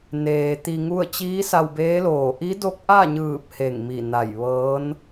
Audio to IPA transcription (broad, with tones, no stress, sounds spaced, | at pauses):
n eː˩ t̪ i˧ ŋ u˥˨ ə̯ t͡ɕ iː˧˥ s a˧ w b eː˧˥ l oː˧˩ ʔ i˧˥ d o˧˥ k̚ ʔ a˥˨ ɲ ɯː˧˩ p̚ h e˧˩ ŋ m i˧˩ n a˧˩ j ʋ ɤː˧˥ n